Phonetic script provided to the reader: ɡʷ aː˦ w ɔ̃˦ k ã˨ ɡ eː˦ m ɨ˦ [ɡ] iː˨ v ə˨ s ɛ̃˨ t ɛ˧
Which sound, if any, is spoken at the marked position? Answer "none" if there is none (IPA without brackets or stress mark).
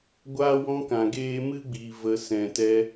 ɡ͡b